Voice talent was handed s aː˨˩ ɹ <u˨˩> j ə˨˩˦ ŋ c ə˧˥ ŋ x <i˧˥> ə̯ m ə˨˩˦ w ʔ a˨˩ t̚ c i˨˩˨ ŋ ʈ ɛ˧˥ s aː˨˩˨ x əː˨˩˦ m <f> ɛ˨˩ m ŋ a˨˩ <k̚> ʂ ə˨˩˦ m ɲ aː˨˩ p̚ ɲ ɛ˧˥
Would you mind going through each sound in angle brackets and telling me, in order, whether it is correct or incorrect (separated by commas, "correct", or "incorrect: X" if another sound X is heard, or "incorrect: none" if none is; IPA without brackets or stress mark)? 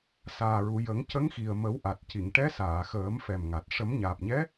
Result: incorrect: u˨˩˨, incorrect: i˨˩, correct, incorrect: t̚